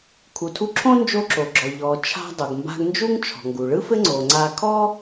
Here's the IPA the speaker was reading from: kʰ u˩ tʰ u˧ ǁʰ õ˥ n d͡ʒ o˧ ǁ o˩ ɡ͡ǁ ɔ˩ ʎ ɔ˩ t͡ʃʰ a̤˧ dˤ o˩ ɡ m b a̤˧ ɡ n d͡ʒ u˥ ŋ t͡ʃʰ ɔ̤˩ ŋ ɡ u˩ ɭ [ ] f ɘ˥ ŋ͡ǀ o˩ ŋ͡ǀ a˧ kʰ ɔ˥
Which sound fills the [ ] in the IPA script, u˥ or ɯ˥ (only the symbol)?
ɯ˥